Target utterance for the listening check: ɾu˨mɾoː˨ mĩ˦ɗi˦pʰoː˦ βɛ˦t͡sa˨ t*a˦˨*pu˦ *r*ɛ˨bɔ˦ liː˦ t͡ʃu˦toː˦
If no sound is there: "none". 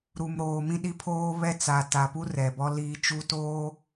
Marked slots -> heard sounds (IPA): a˨, r

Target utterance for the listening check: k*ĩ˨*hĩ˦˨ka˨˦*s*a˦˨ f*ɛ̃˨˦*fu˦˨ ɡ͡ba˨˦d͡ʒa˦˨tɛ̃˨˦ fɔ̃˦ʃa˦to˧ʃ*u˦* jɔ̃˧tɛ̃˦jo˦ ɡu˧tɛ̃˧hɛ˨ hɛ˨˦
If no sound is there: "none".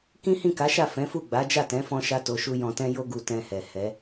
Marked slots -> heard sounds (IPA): ĩ˦, ʃ, ɛ̃˨˦, u˦

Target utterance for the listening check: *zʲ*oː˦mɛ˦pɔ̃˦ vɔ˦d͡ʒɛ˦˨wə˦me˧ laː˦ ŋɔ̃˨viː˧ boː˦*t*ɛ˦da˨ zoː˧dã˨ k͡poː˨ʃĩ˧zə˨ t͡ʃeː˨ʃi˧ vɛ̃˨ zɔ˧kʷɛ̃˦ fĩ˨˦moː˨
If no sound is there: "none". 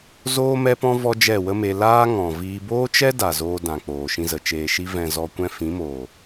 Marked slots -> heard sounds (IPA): z, t͡ʃ

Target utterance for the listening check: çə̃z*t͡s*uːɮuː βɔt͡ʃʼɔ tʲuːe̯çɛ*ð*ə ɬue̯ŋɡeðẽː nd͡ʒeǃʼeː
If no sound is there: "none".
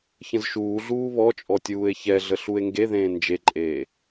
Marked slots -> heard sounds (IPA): ʃ, ɮ

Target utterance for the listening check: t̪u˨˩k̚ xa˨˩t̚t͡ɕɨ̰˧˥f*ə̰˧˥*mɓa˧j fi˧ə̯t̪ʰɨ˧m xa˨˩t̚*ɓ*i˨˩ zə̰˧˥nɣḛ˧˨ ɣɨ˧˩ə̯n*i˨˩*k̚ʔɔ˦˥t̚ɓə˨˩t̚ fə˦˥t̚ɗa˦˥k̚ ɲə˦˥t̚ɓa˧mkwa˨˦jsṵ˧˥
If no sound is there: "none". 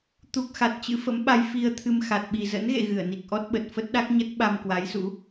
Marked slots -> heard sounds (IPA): ə̰˧˥, ɓ, i˨˩

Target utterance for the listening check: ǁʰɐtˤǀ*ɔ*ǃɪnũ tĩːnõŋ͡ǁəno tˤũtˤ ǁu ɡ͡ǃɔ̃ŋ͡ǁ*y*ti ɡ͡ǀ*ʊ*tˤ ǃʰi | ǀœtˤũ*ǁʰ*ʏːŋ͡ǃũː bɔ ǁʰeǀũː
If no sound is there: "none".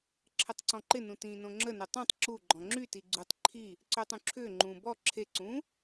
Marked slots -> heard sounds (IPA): ɔ̃, y, u, ǁʰ

